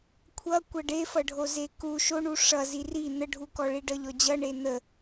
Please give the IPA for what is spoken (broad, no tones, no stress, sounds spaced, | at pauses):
kʷʰ ʌ kʷ ʌ ɖ e f ʌ ɖʱ o z e k u ʃ o ɳ u ʂ ʌ z i r i n̪ ə ɖʱ u k ɔ ɭ i ɖ ʌ ʎ ɔ d͡ʑ ʌ ɳ e n̪ ə